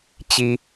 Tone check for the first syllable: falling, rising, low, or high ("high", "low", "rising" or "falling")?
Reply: low